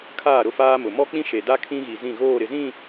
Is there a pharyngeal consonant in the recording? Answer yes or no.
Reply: no